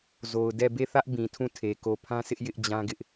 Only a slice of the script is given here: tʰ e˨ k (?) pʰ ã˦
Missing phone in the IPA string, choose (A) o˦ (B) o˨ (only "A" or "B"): B